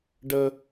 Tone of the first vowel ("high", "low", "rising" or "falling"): low